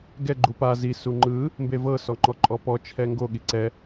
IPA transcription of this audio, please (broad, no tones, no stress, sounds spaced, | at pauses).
ɡ ɛ ɡ͡ǃ u p a z i s u ŋ͡ǃ ɯ | m b e v ɤ s ɔ ŋ͡ǃ ɔ ǃʼ ɔ p ɔ t͡ʃʰ ɛ ŋ ɡ o ɠ i ǀ ɛ